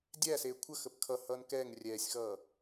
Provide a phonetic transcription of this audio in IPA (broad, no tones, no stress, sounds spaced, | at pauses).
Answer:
dʲ æ s eː kʷʰ ə x ə p kʰ ʌ h ʌː n k ɛː ŋ rʲ ɛː sʲ x ʌː